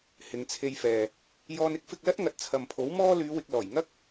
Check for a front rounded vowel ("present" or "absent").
present